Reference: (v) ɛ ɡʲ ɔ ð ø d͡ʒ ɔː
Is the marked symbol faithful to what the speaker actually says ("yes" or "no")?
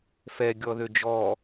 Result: no